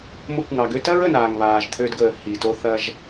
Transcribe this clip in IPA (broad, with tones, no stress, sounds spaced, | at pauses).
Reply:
m o˧ kʷ ŋ ɑ˨ ɡ ø˦ t ɐ˦ ɹ ə˨ n aː˨ ŋ β aː˨ ʒ t̪ʰ ø˧ d ɡ əː˨ h i˨ t o˧ θ ɐ˧ ʒ